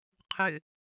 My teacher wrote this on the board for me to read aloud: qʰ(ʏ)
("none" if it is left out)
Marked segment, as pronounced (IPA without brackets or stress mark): ʏ